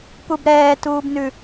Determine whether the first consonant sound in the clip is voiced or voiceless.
voiceless